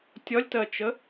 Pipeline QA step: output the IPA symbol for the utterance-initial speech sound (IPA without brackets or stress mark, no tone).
tʲ